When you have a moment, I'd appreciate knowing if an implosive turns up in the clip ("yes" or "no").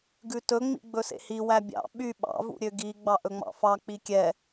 yes